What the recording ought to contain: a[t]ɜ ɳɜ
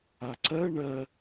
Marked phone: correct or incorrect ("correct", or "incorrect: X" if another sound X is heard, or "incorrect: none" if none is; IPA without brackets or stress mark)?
incorrect: ǀ